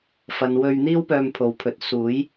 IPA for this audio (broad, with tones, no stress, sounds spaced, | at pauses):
f ɐ˨ n w ɵ˧ ɥ n̪ iː˥ w p œː˧ m pʰ o˨ w pʰ ɵ˨˥ t̚ s uː˨˥ j